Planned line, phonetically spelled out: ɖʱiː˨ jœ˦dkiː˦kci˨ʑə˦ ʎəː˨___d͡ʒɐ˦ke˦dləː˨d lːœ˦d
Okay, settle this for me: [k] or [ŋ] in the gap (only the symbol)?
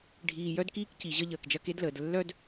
k